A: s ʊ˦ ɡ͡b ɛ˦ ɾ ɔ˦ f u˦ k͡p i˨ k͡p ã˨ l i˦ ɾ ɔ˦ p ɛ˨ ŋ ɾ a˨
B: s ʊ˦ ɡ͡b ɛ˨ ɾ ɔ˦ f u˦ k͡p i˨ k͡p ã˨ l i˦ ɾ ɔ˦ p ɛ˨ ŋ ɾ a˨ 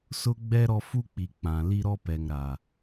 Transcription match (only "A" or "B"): A